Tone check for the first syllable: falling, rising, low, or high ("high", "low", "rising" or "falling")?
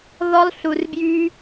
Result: high